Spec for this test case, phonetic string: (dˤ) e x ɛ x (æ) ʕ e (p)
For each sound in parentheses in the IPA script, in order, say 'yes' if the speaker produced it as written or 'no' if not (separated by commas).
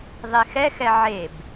no, no, no